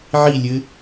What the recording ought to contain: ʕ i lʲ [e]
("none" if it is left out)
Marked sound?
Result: ɘ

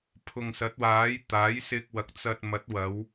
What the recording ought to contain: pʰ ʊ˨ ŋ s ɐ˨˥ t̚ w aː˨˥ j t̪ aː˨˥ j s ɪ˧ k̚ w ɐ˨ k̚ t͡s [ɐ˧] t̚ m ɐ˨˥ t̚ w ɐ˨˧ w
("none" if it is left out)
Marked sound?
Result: ɐ˧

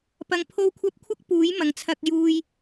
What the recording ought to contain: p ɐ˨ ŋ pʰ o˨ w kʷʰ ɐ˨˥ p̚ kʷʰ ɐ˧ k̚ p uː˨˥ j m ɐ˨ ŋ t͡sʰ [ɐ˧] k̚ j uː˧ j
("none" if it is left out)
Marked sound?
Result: ɐ˧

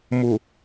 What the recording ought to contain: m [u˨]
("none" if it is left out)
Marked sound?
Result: u˨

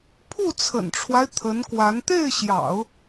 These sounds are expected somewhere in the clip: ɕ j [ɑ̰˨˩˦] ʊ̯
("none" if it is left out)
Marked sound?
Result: ɑ̰˨˩˦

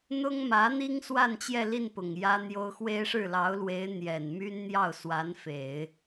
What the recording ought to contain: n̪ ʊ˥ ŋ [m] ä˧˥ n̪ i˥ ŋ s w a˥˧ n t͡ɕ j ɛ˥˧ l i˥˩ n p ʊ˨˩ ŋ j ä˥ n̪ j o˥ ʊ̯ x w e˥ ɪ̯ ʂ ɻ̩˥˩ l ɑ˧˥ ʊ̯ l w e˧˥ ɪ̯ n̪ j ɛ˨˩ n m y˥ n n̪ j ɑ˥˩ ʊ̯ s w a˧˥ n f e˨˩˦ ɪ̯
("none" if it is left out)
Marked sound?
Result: m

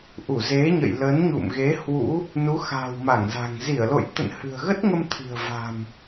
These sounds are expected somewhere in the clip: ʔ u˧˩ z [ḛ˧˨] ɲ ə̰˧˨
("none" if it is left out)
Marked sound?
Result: e˨˦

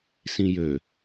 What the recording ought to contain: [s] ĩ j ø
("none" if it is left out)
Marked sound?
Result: s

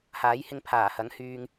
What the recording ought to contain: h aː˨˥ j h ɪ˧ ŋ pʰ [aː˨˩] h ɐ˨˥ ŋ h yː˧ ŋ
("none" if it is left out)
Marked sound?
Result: aː˨˩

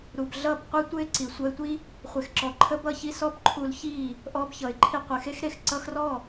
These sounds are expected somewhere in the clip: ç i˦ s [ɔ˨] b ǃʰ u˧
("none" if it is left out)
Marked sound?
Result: ɔ˦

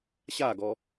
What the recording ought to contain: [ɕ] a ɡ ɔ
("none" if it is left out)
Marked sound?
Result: ɕ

